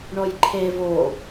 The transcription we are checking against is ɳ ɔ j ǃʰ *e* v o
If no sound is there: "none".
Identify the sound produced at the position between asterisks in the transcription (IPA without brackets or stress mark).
e